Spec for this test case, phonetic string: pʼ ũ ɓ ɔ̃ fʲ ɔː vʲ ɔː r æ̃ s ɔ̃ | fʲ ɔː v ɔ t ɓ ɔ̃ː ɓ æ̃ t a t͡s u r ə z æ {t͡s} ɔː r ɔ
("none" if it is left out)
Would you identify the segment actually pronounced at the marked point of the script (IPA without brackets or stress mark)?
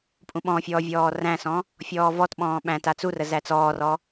t͡s